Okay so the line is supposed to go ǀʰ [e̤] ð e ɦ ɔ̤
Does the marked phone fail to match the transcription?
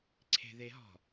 no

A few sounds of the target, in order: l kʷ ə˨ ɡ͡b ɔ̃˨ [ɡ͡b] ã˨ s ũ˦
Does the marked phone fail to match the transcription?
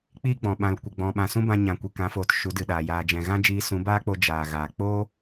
yes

